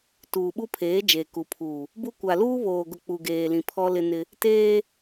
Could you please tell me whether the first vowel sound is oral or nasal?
oral